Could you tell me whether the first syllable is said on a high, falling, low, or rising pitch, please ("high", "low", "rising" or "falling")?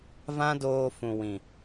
high